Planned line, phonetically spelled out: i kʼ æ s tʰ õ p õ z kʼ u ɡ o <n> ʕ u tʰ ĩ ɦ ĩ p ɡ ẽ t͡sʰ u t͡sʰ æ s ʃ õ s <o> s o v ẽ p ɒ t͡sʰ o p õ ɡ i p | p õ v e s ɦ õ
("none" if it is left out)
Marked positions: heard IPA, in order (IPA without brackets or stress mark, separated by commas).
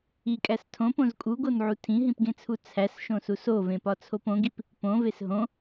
n, u